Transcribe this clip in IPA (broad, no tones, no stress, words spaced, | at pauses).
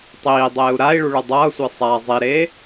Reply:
tˤiːdˤeːu̯ ɾai̯ɭu ɭɯdˤʌːsʷe sˤa zˤiɾeː